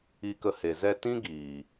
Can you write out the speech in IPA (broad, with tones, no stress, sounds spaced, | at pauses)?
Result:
i˧ k ə˧ h e˨ z ɛ˧ t ĩ˦ ɡ iː˨